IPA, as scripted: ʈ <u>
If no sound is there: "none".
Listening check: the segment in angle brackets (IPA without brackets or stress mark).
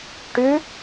ʉ